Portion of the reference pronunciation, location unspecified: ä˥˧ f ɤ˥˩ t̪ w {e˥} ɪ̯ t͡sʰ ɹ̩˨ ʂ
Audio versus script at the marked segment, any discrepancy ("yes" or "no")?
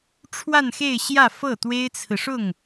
no